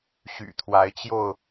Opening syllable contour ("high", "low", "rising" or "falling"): low